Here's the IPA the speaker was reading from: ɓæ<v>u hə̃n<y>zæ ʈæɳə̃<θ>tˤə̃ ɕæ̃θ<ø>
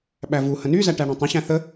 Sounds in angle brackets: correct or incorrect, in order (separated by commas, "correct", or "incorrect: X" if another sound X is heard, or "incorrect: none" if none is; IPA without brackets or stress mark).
correct, correct, incorrect: none, incorrect: ə